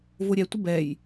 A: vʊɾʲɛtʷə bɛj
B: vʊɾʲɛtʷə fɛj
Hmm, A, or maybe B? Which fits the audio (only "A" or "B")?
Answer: A